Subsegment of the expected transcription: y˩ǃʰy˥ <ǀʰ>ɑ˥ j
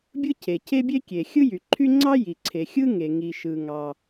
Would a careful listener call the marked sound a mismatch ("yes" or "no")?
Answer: yes